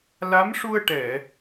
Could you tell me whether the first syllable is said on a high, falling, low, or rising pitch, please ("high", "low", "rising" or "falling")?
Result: rising